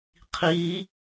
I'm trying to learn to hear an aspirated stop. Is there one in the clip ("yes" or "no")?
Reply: yes